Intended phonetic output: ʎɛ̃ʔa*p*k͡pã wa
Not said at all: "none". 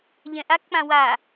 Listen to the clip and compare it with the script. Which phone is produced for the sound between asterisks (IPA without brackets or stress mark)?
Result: k